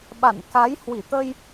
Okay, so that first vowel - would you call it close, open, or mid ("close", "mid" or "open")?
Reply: open